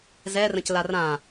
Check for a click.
absent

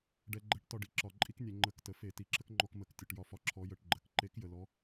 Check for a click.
present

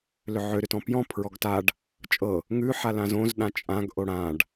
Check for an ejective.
present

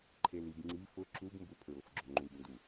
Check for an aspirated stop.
present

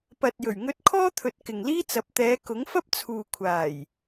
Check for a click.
absent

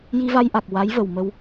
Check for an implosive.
absent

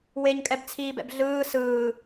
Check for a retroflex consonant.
absent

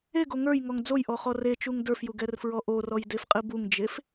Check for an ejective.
present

